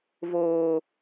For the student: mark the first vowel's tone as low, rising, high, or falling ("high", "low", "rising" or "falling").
low